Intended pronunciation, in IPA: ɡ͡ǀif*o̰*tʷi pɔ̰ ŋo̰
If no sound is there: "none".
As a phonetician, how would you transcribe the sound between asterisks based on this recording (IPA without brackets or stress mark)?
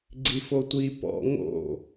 o